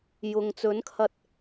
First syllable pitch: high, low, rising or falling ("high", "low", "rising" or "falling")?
low